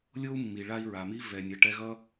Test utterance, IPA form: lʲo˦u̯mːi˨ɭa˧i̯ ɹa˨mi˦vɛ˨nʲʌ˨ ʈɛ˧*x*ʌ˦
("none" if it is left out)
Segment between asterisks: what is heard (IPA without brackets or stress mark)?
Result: ɣ